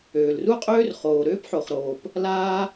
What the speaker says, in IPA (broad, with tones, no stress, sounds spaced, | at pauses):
øː˩ l r u˥ qʼ øː˥ r χ oː˩ ɾ øː˥ p ħ o˩ χ ɾ oː˩ p | l aː˥